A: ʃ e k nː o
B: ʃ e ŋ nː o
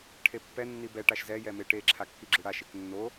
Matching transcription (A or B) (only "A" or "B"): A